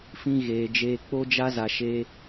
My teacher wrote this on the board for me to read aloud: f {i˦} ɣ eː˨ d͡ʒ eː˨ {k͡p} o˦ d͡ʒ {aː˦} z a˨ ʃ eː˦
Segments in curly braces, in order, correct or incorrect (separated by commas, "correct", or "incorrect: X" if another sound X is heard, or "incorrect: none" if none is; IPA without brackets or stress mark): incorrect: ĩ˦, correct, incorrect: a˦